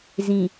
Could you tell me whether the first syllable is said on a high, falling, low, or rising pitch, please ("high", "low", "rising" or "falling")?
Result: low